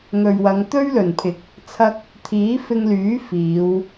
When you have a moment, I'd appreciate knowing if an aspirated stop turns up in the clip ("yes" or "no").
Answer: yes